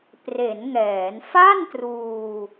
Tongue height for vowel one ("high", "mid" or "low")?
mid